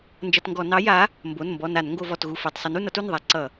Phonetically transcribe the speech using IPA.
nd͡ʒʌ˧˩˧tŋɡɔ˧˩˧ nɑ˨˥ja˨˥ | mbo˩˧˩nmbɔ˩˧˩na˧˩˧n ŋɡo˧˩˧vɔ˩˧˩tɣu˩˧˩ fɑ˩˧˩tsˤʌ˨˥nu˩˧˩n ʌ˨˥tu˩˧˩nðˤa˨˥ ǀʌ˧˩˧

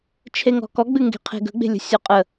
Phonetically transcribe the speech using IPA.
t͡ʃʰeŋɔ̤kɔɡ͡bɨ ŋɡe̤qʰe̤ɡə̤ɡ͡be̤ lʲə̤sʲɔqʼə

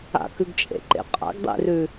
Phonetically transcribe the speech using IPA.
a̰kʉɡt͡ʃʼḛǃḛ qʼa̰ɡdˤḛrʉ

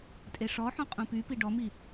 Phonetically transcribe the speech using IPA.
tʼeʂɔħũ qʼũpypi ɖɔmi

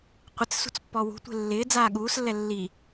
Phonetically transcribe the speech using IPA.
qʷɪt͡ssṳt͡s pːɔwṳtʷe̤ lːɪː d͡zaːɠuːslːɛ lːi

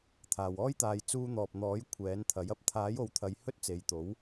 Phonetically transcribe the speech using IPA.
t̪ʰaː˨wɔː˥jt̪aː˧j t͡suː˧n̪ɔː˨p̚n̪ɔː˨˥j kʷʰɛː˨˥nt̪ʰɐ˨˥jɐ˥p̚ t̪ʰaː˨˥jo˨˧wt̪ʰɐ˨˧j hɵ˥t̚t͡se˨˧jt̪o˨˥w

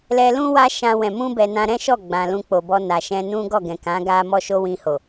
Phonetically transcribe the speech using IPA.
lɛ˧lũ˦wa˦ ʃã˧wɛ̃˨ mũ˧bɛ˨ nã˧ɾɛ̃˦ʃɔ˦˨ ɡ͡bã˨lũ˧k͡po˨bɔ˧ na˨ʃɛ̃˧nũ˦ ɡɔ˦˨ɡɛ̃˨kã˨˦ ɡa˧ mɔ˦ʃo˦ wĩ˧ho˨

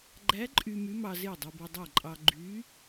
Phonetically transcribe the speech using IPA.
ɡ͡ǃæ˧˥ǃʼy˧ my˧˥mɑ˧ ze˥˩dˤy˧bo˧dˤæ˥˩ ǃʼɑ˧ɡ͡ǃy˧˥

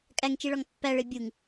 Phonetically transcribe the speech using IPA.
kʼæŋt͡ʃiɭɒŋ pːæɭe bʲuŋ

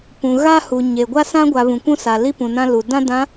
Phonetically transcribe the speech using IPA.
pũ˨ ɣa˦hu˨ ɲe˨ ɡʷa˦sã˦ɡʷa˨ βũ˨kʷũ˦sa˨ li˦pũ˨nã˦ lu˨ dã˦dã˨˦

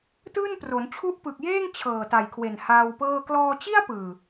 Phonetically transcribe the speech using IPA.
tɯː˥˩npro˩˦n t͡ɕʰu˦˥ʔpɯ˨˩k̚jeː˥˩ŋ t͡ɕʰɤː˨˩ta˨˩jkʰwe˨˩n haː˧wpɤː˥˩ klɔː˧t͡ɕi˥˩a̯ pɯː˨˩

